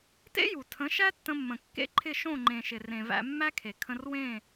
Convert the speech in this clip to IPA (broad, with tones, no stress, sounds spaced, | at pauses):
t ḛ˦ j u˨ tʰ ə̃˨˦ ʃ æ˦ tː ə̃˧ mː ə̃˨ kː ḛ˦ ǃʰ ɪ˦˨ ʃ õ˦˨ ŋ͡ǃ ẽ˨ ʃ ɪ˨ r ẽ˨ v æ̰˧ mː æ˦ kʰ e˨ kʰ ə̃˧ r w ẽ˦˨